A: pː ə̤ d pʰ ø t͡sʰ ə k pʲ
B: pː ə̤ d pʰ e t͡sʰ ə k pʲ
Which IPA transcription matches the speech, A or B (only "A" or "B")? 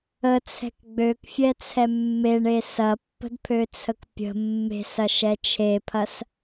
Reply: A